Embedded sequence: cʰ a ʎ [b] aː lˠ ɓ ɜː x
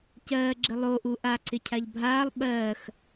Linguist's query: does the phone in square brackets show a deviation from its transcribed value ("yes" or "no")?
yes